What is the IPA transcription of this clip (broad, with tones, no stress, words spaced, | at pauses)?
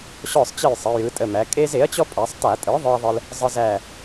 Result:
ɕɔ˦˨sˤt͡ɕə˦˨jsˤə˩˧ jɯ˩˧tʼə˩˧˩mæ˩˧ kʼe˦z e˩˥ɐ̯t͡ɕɔ˦ pʼa˩˧sˤta˧˩˧tʼɯ˩˥ ðˤɯ˦ɐ̯ðˤə˦l | zˤə˦zæ˦˨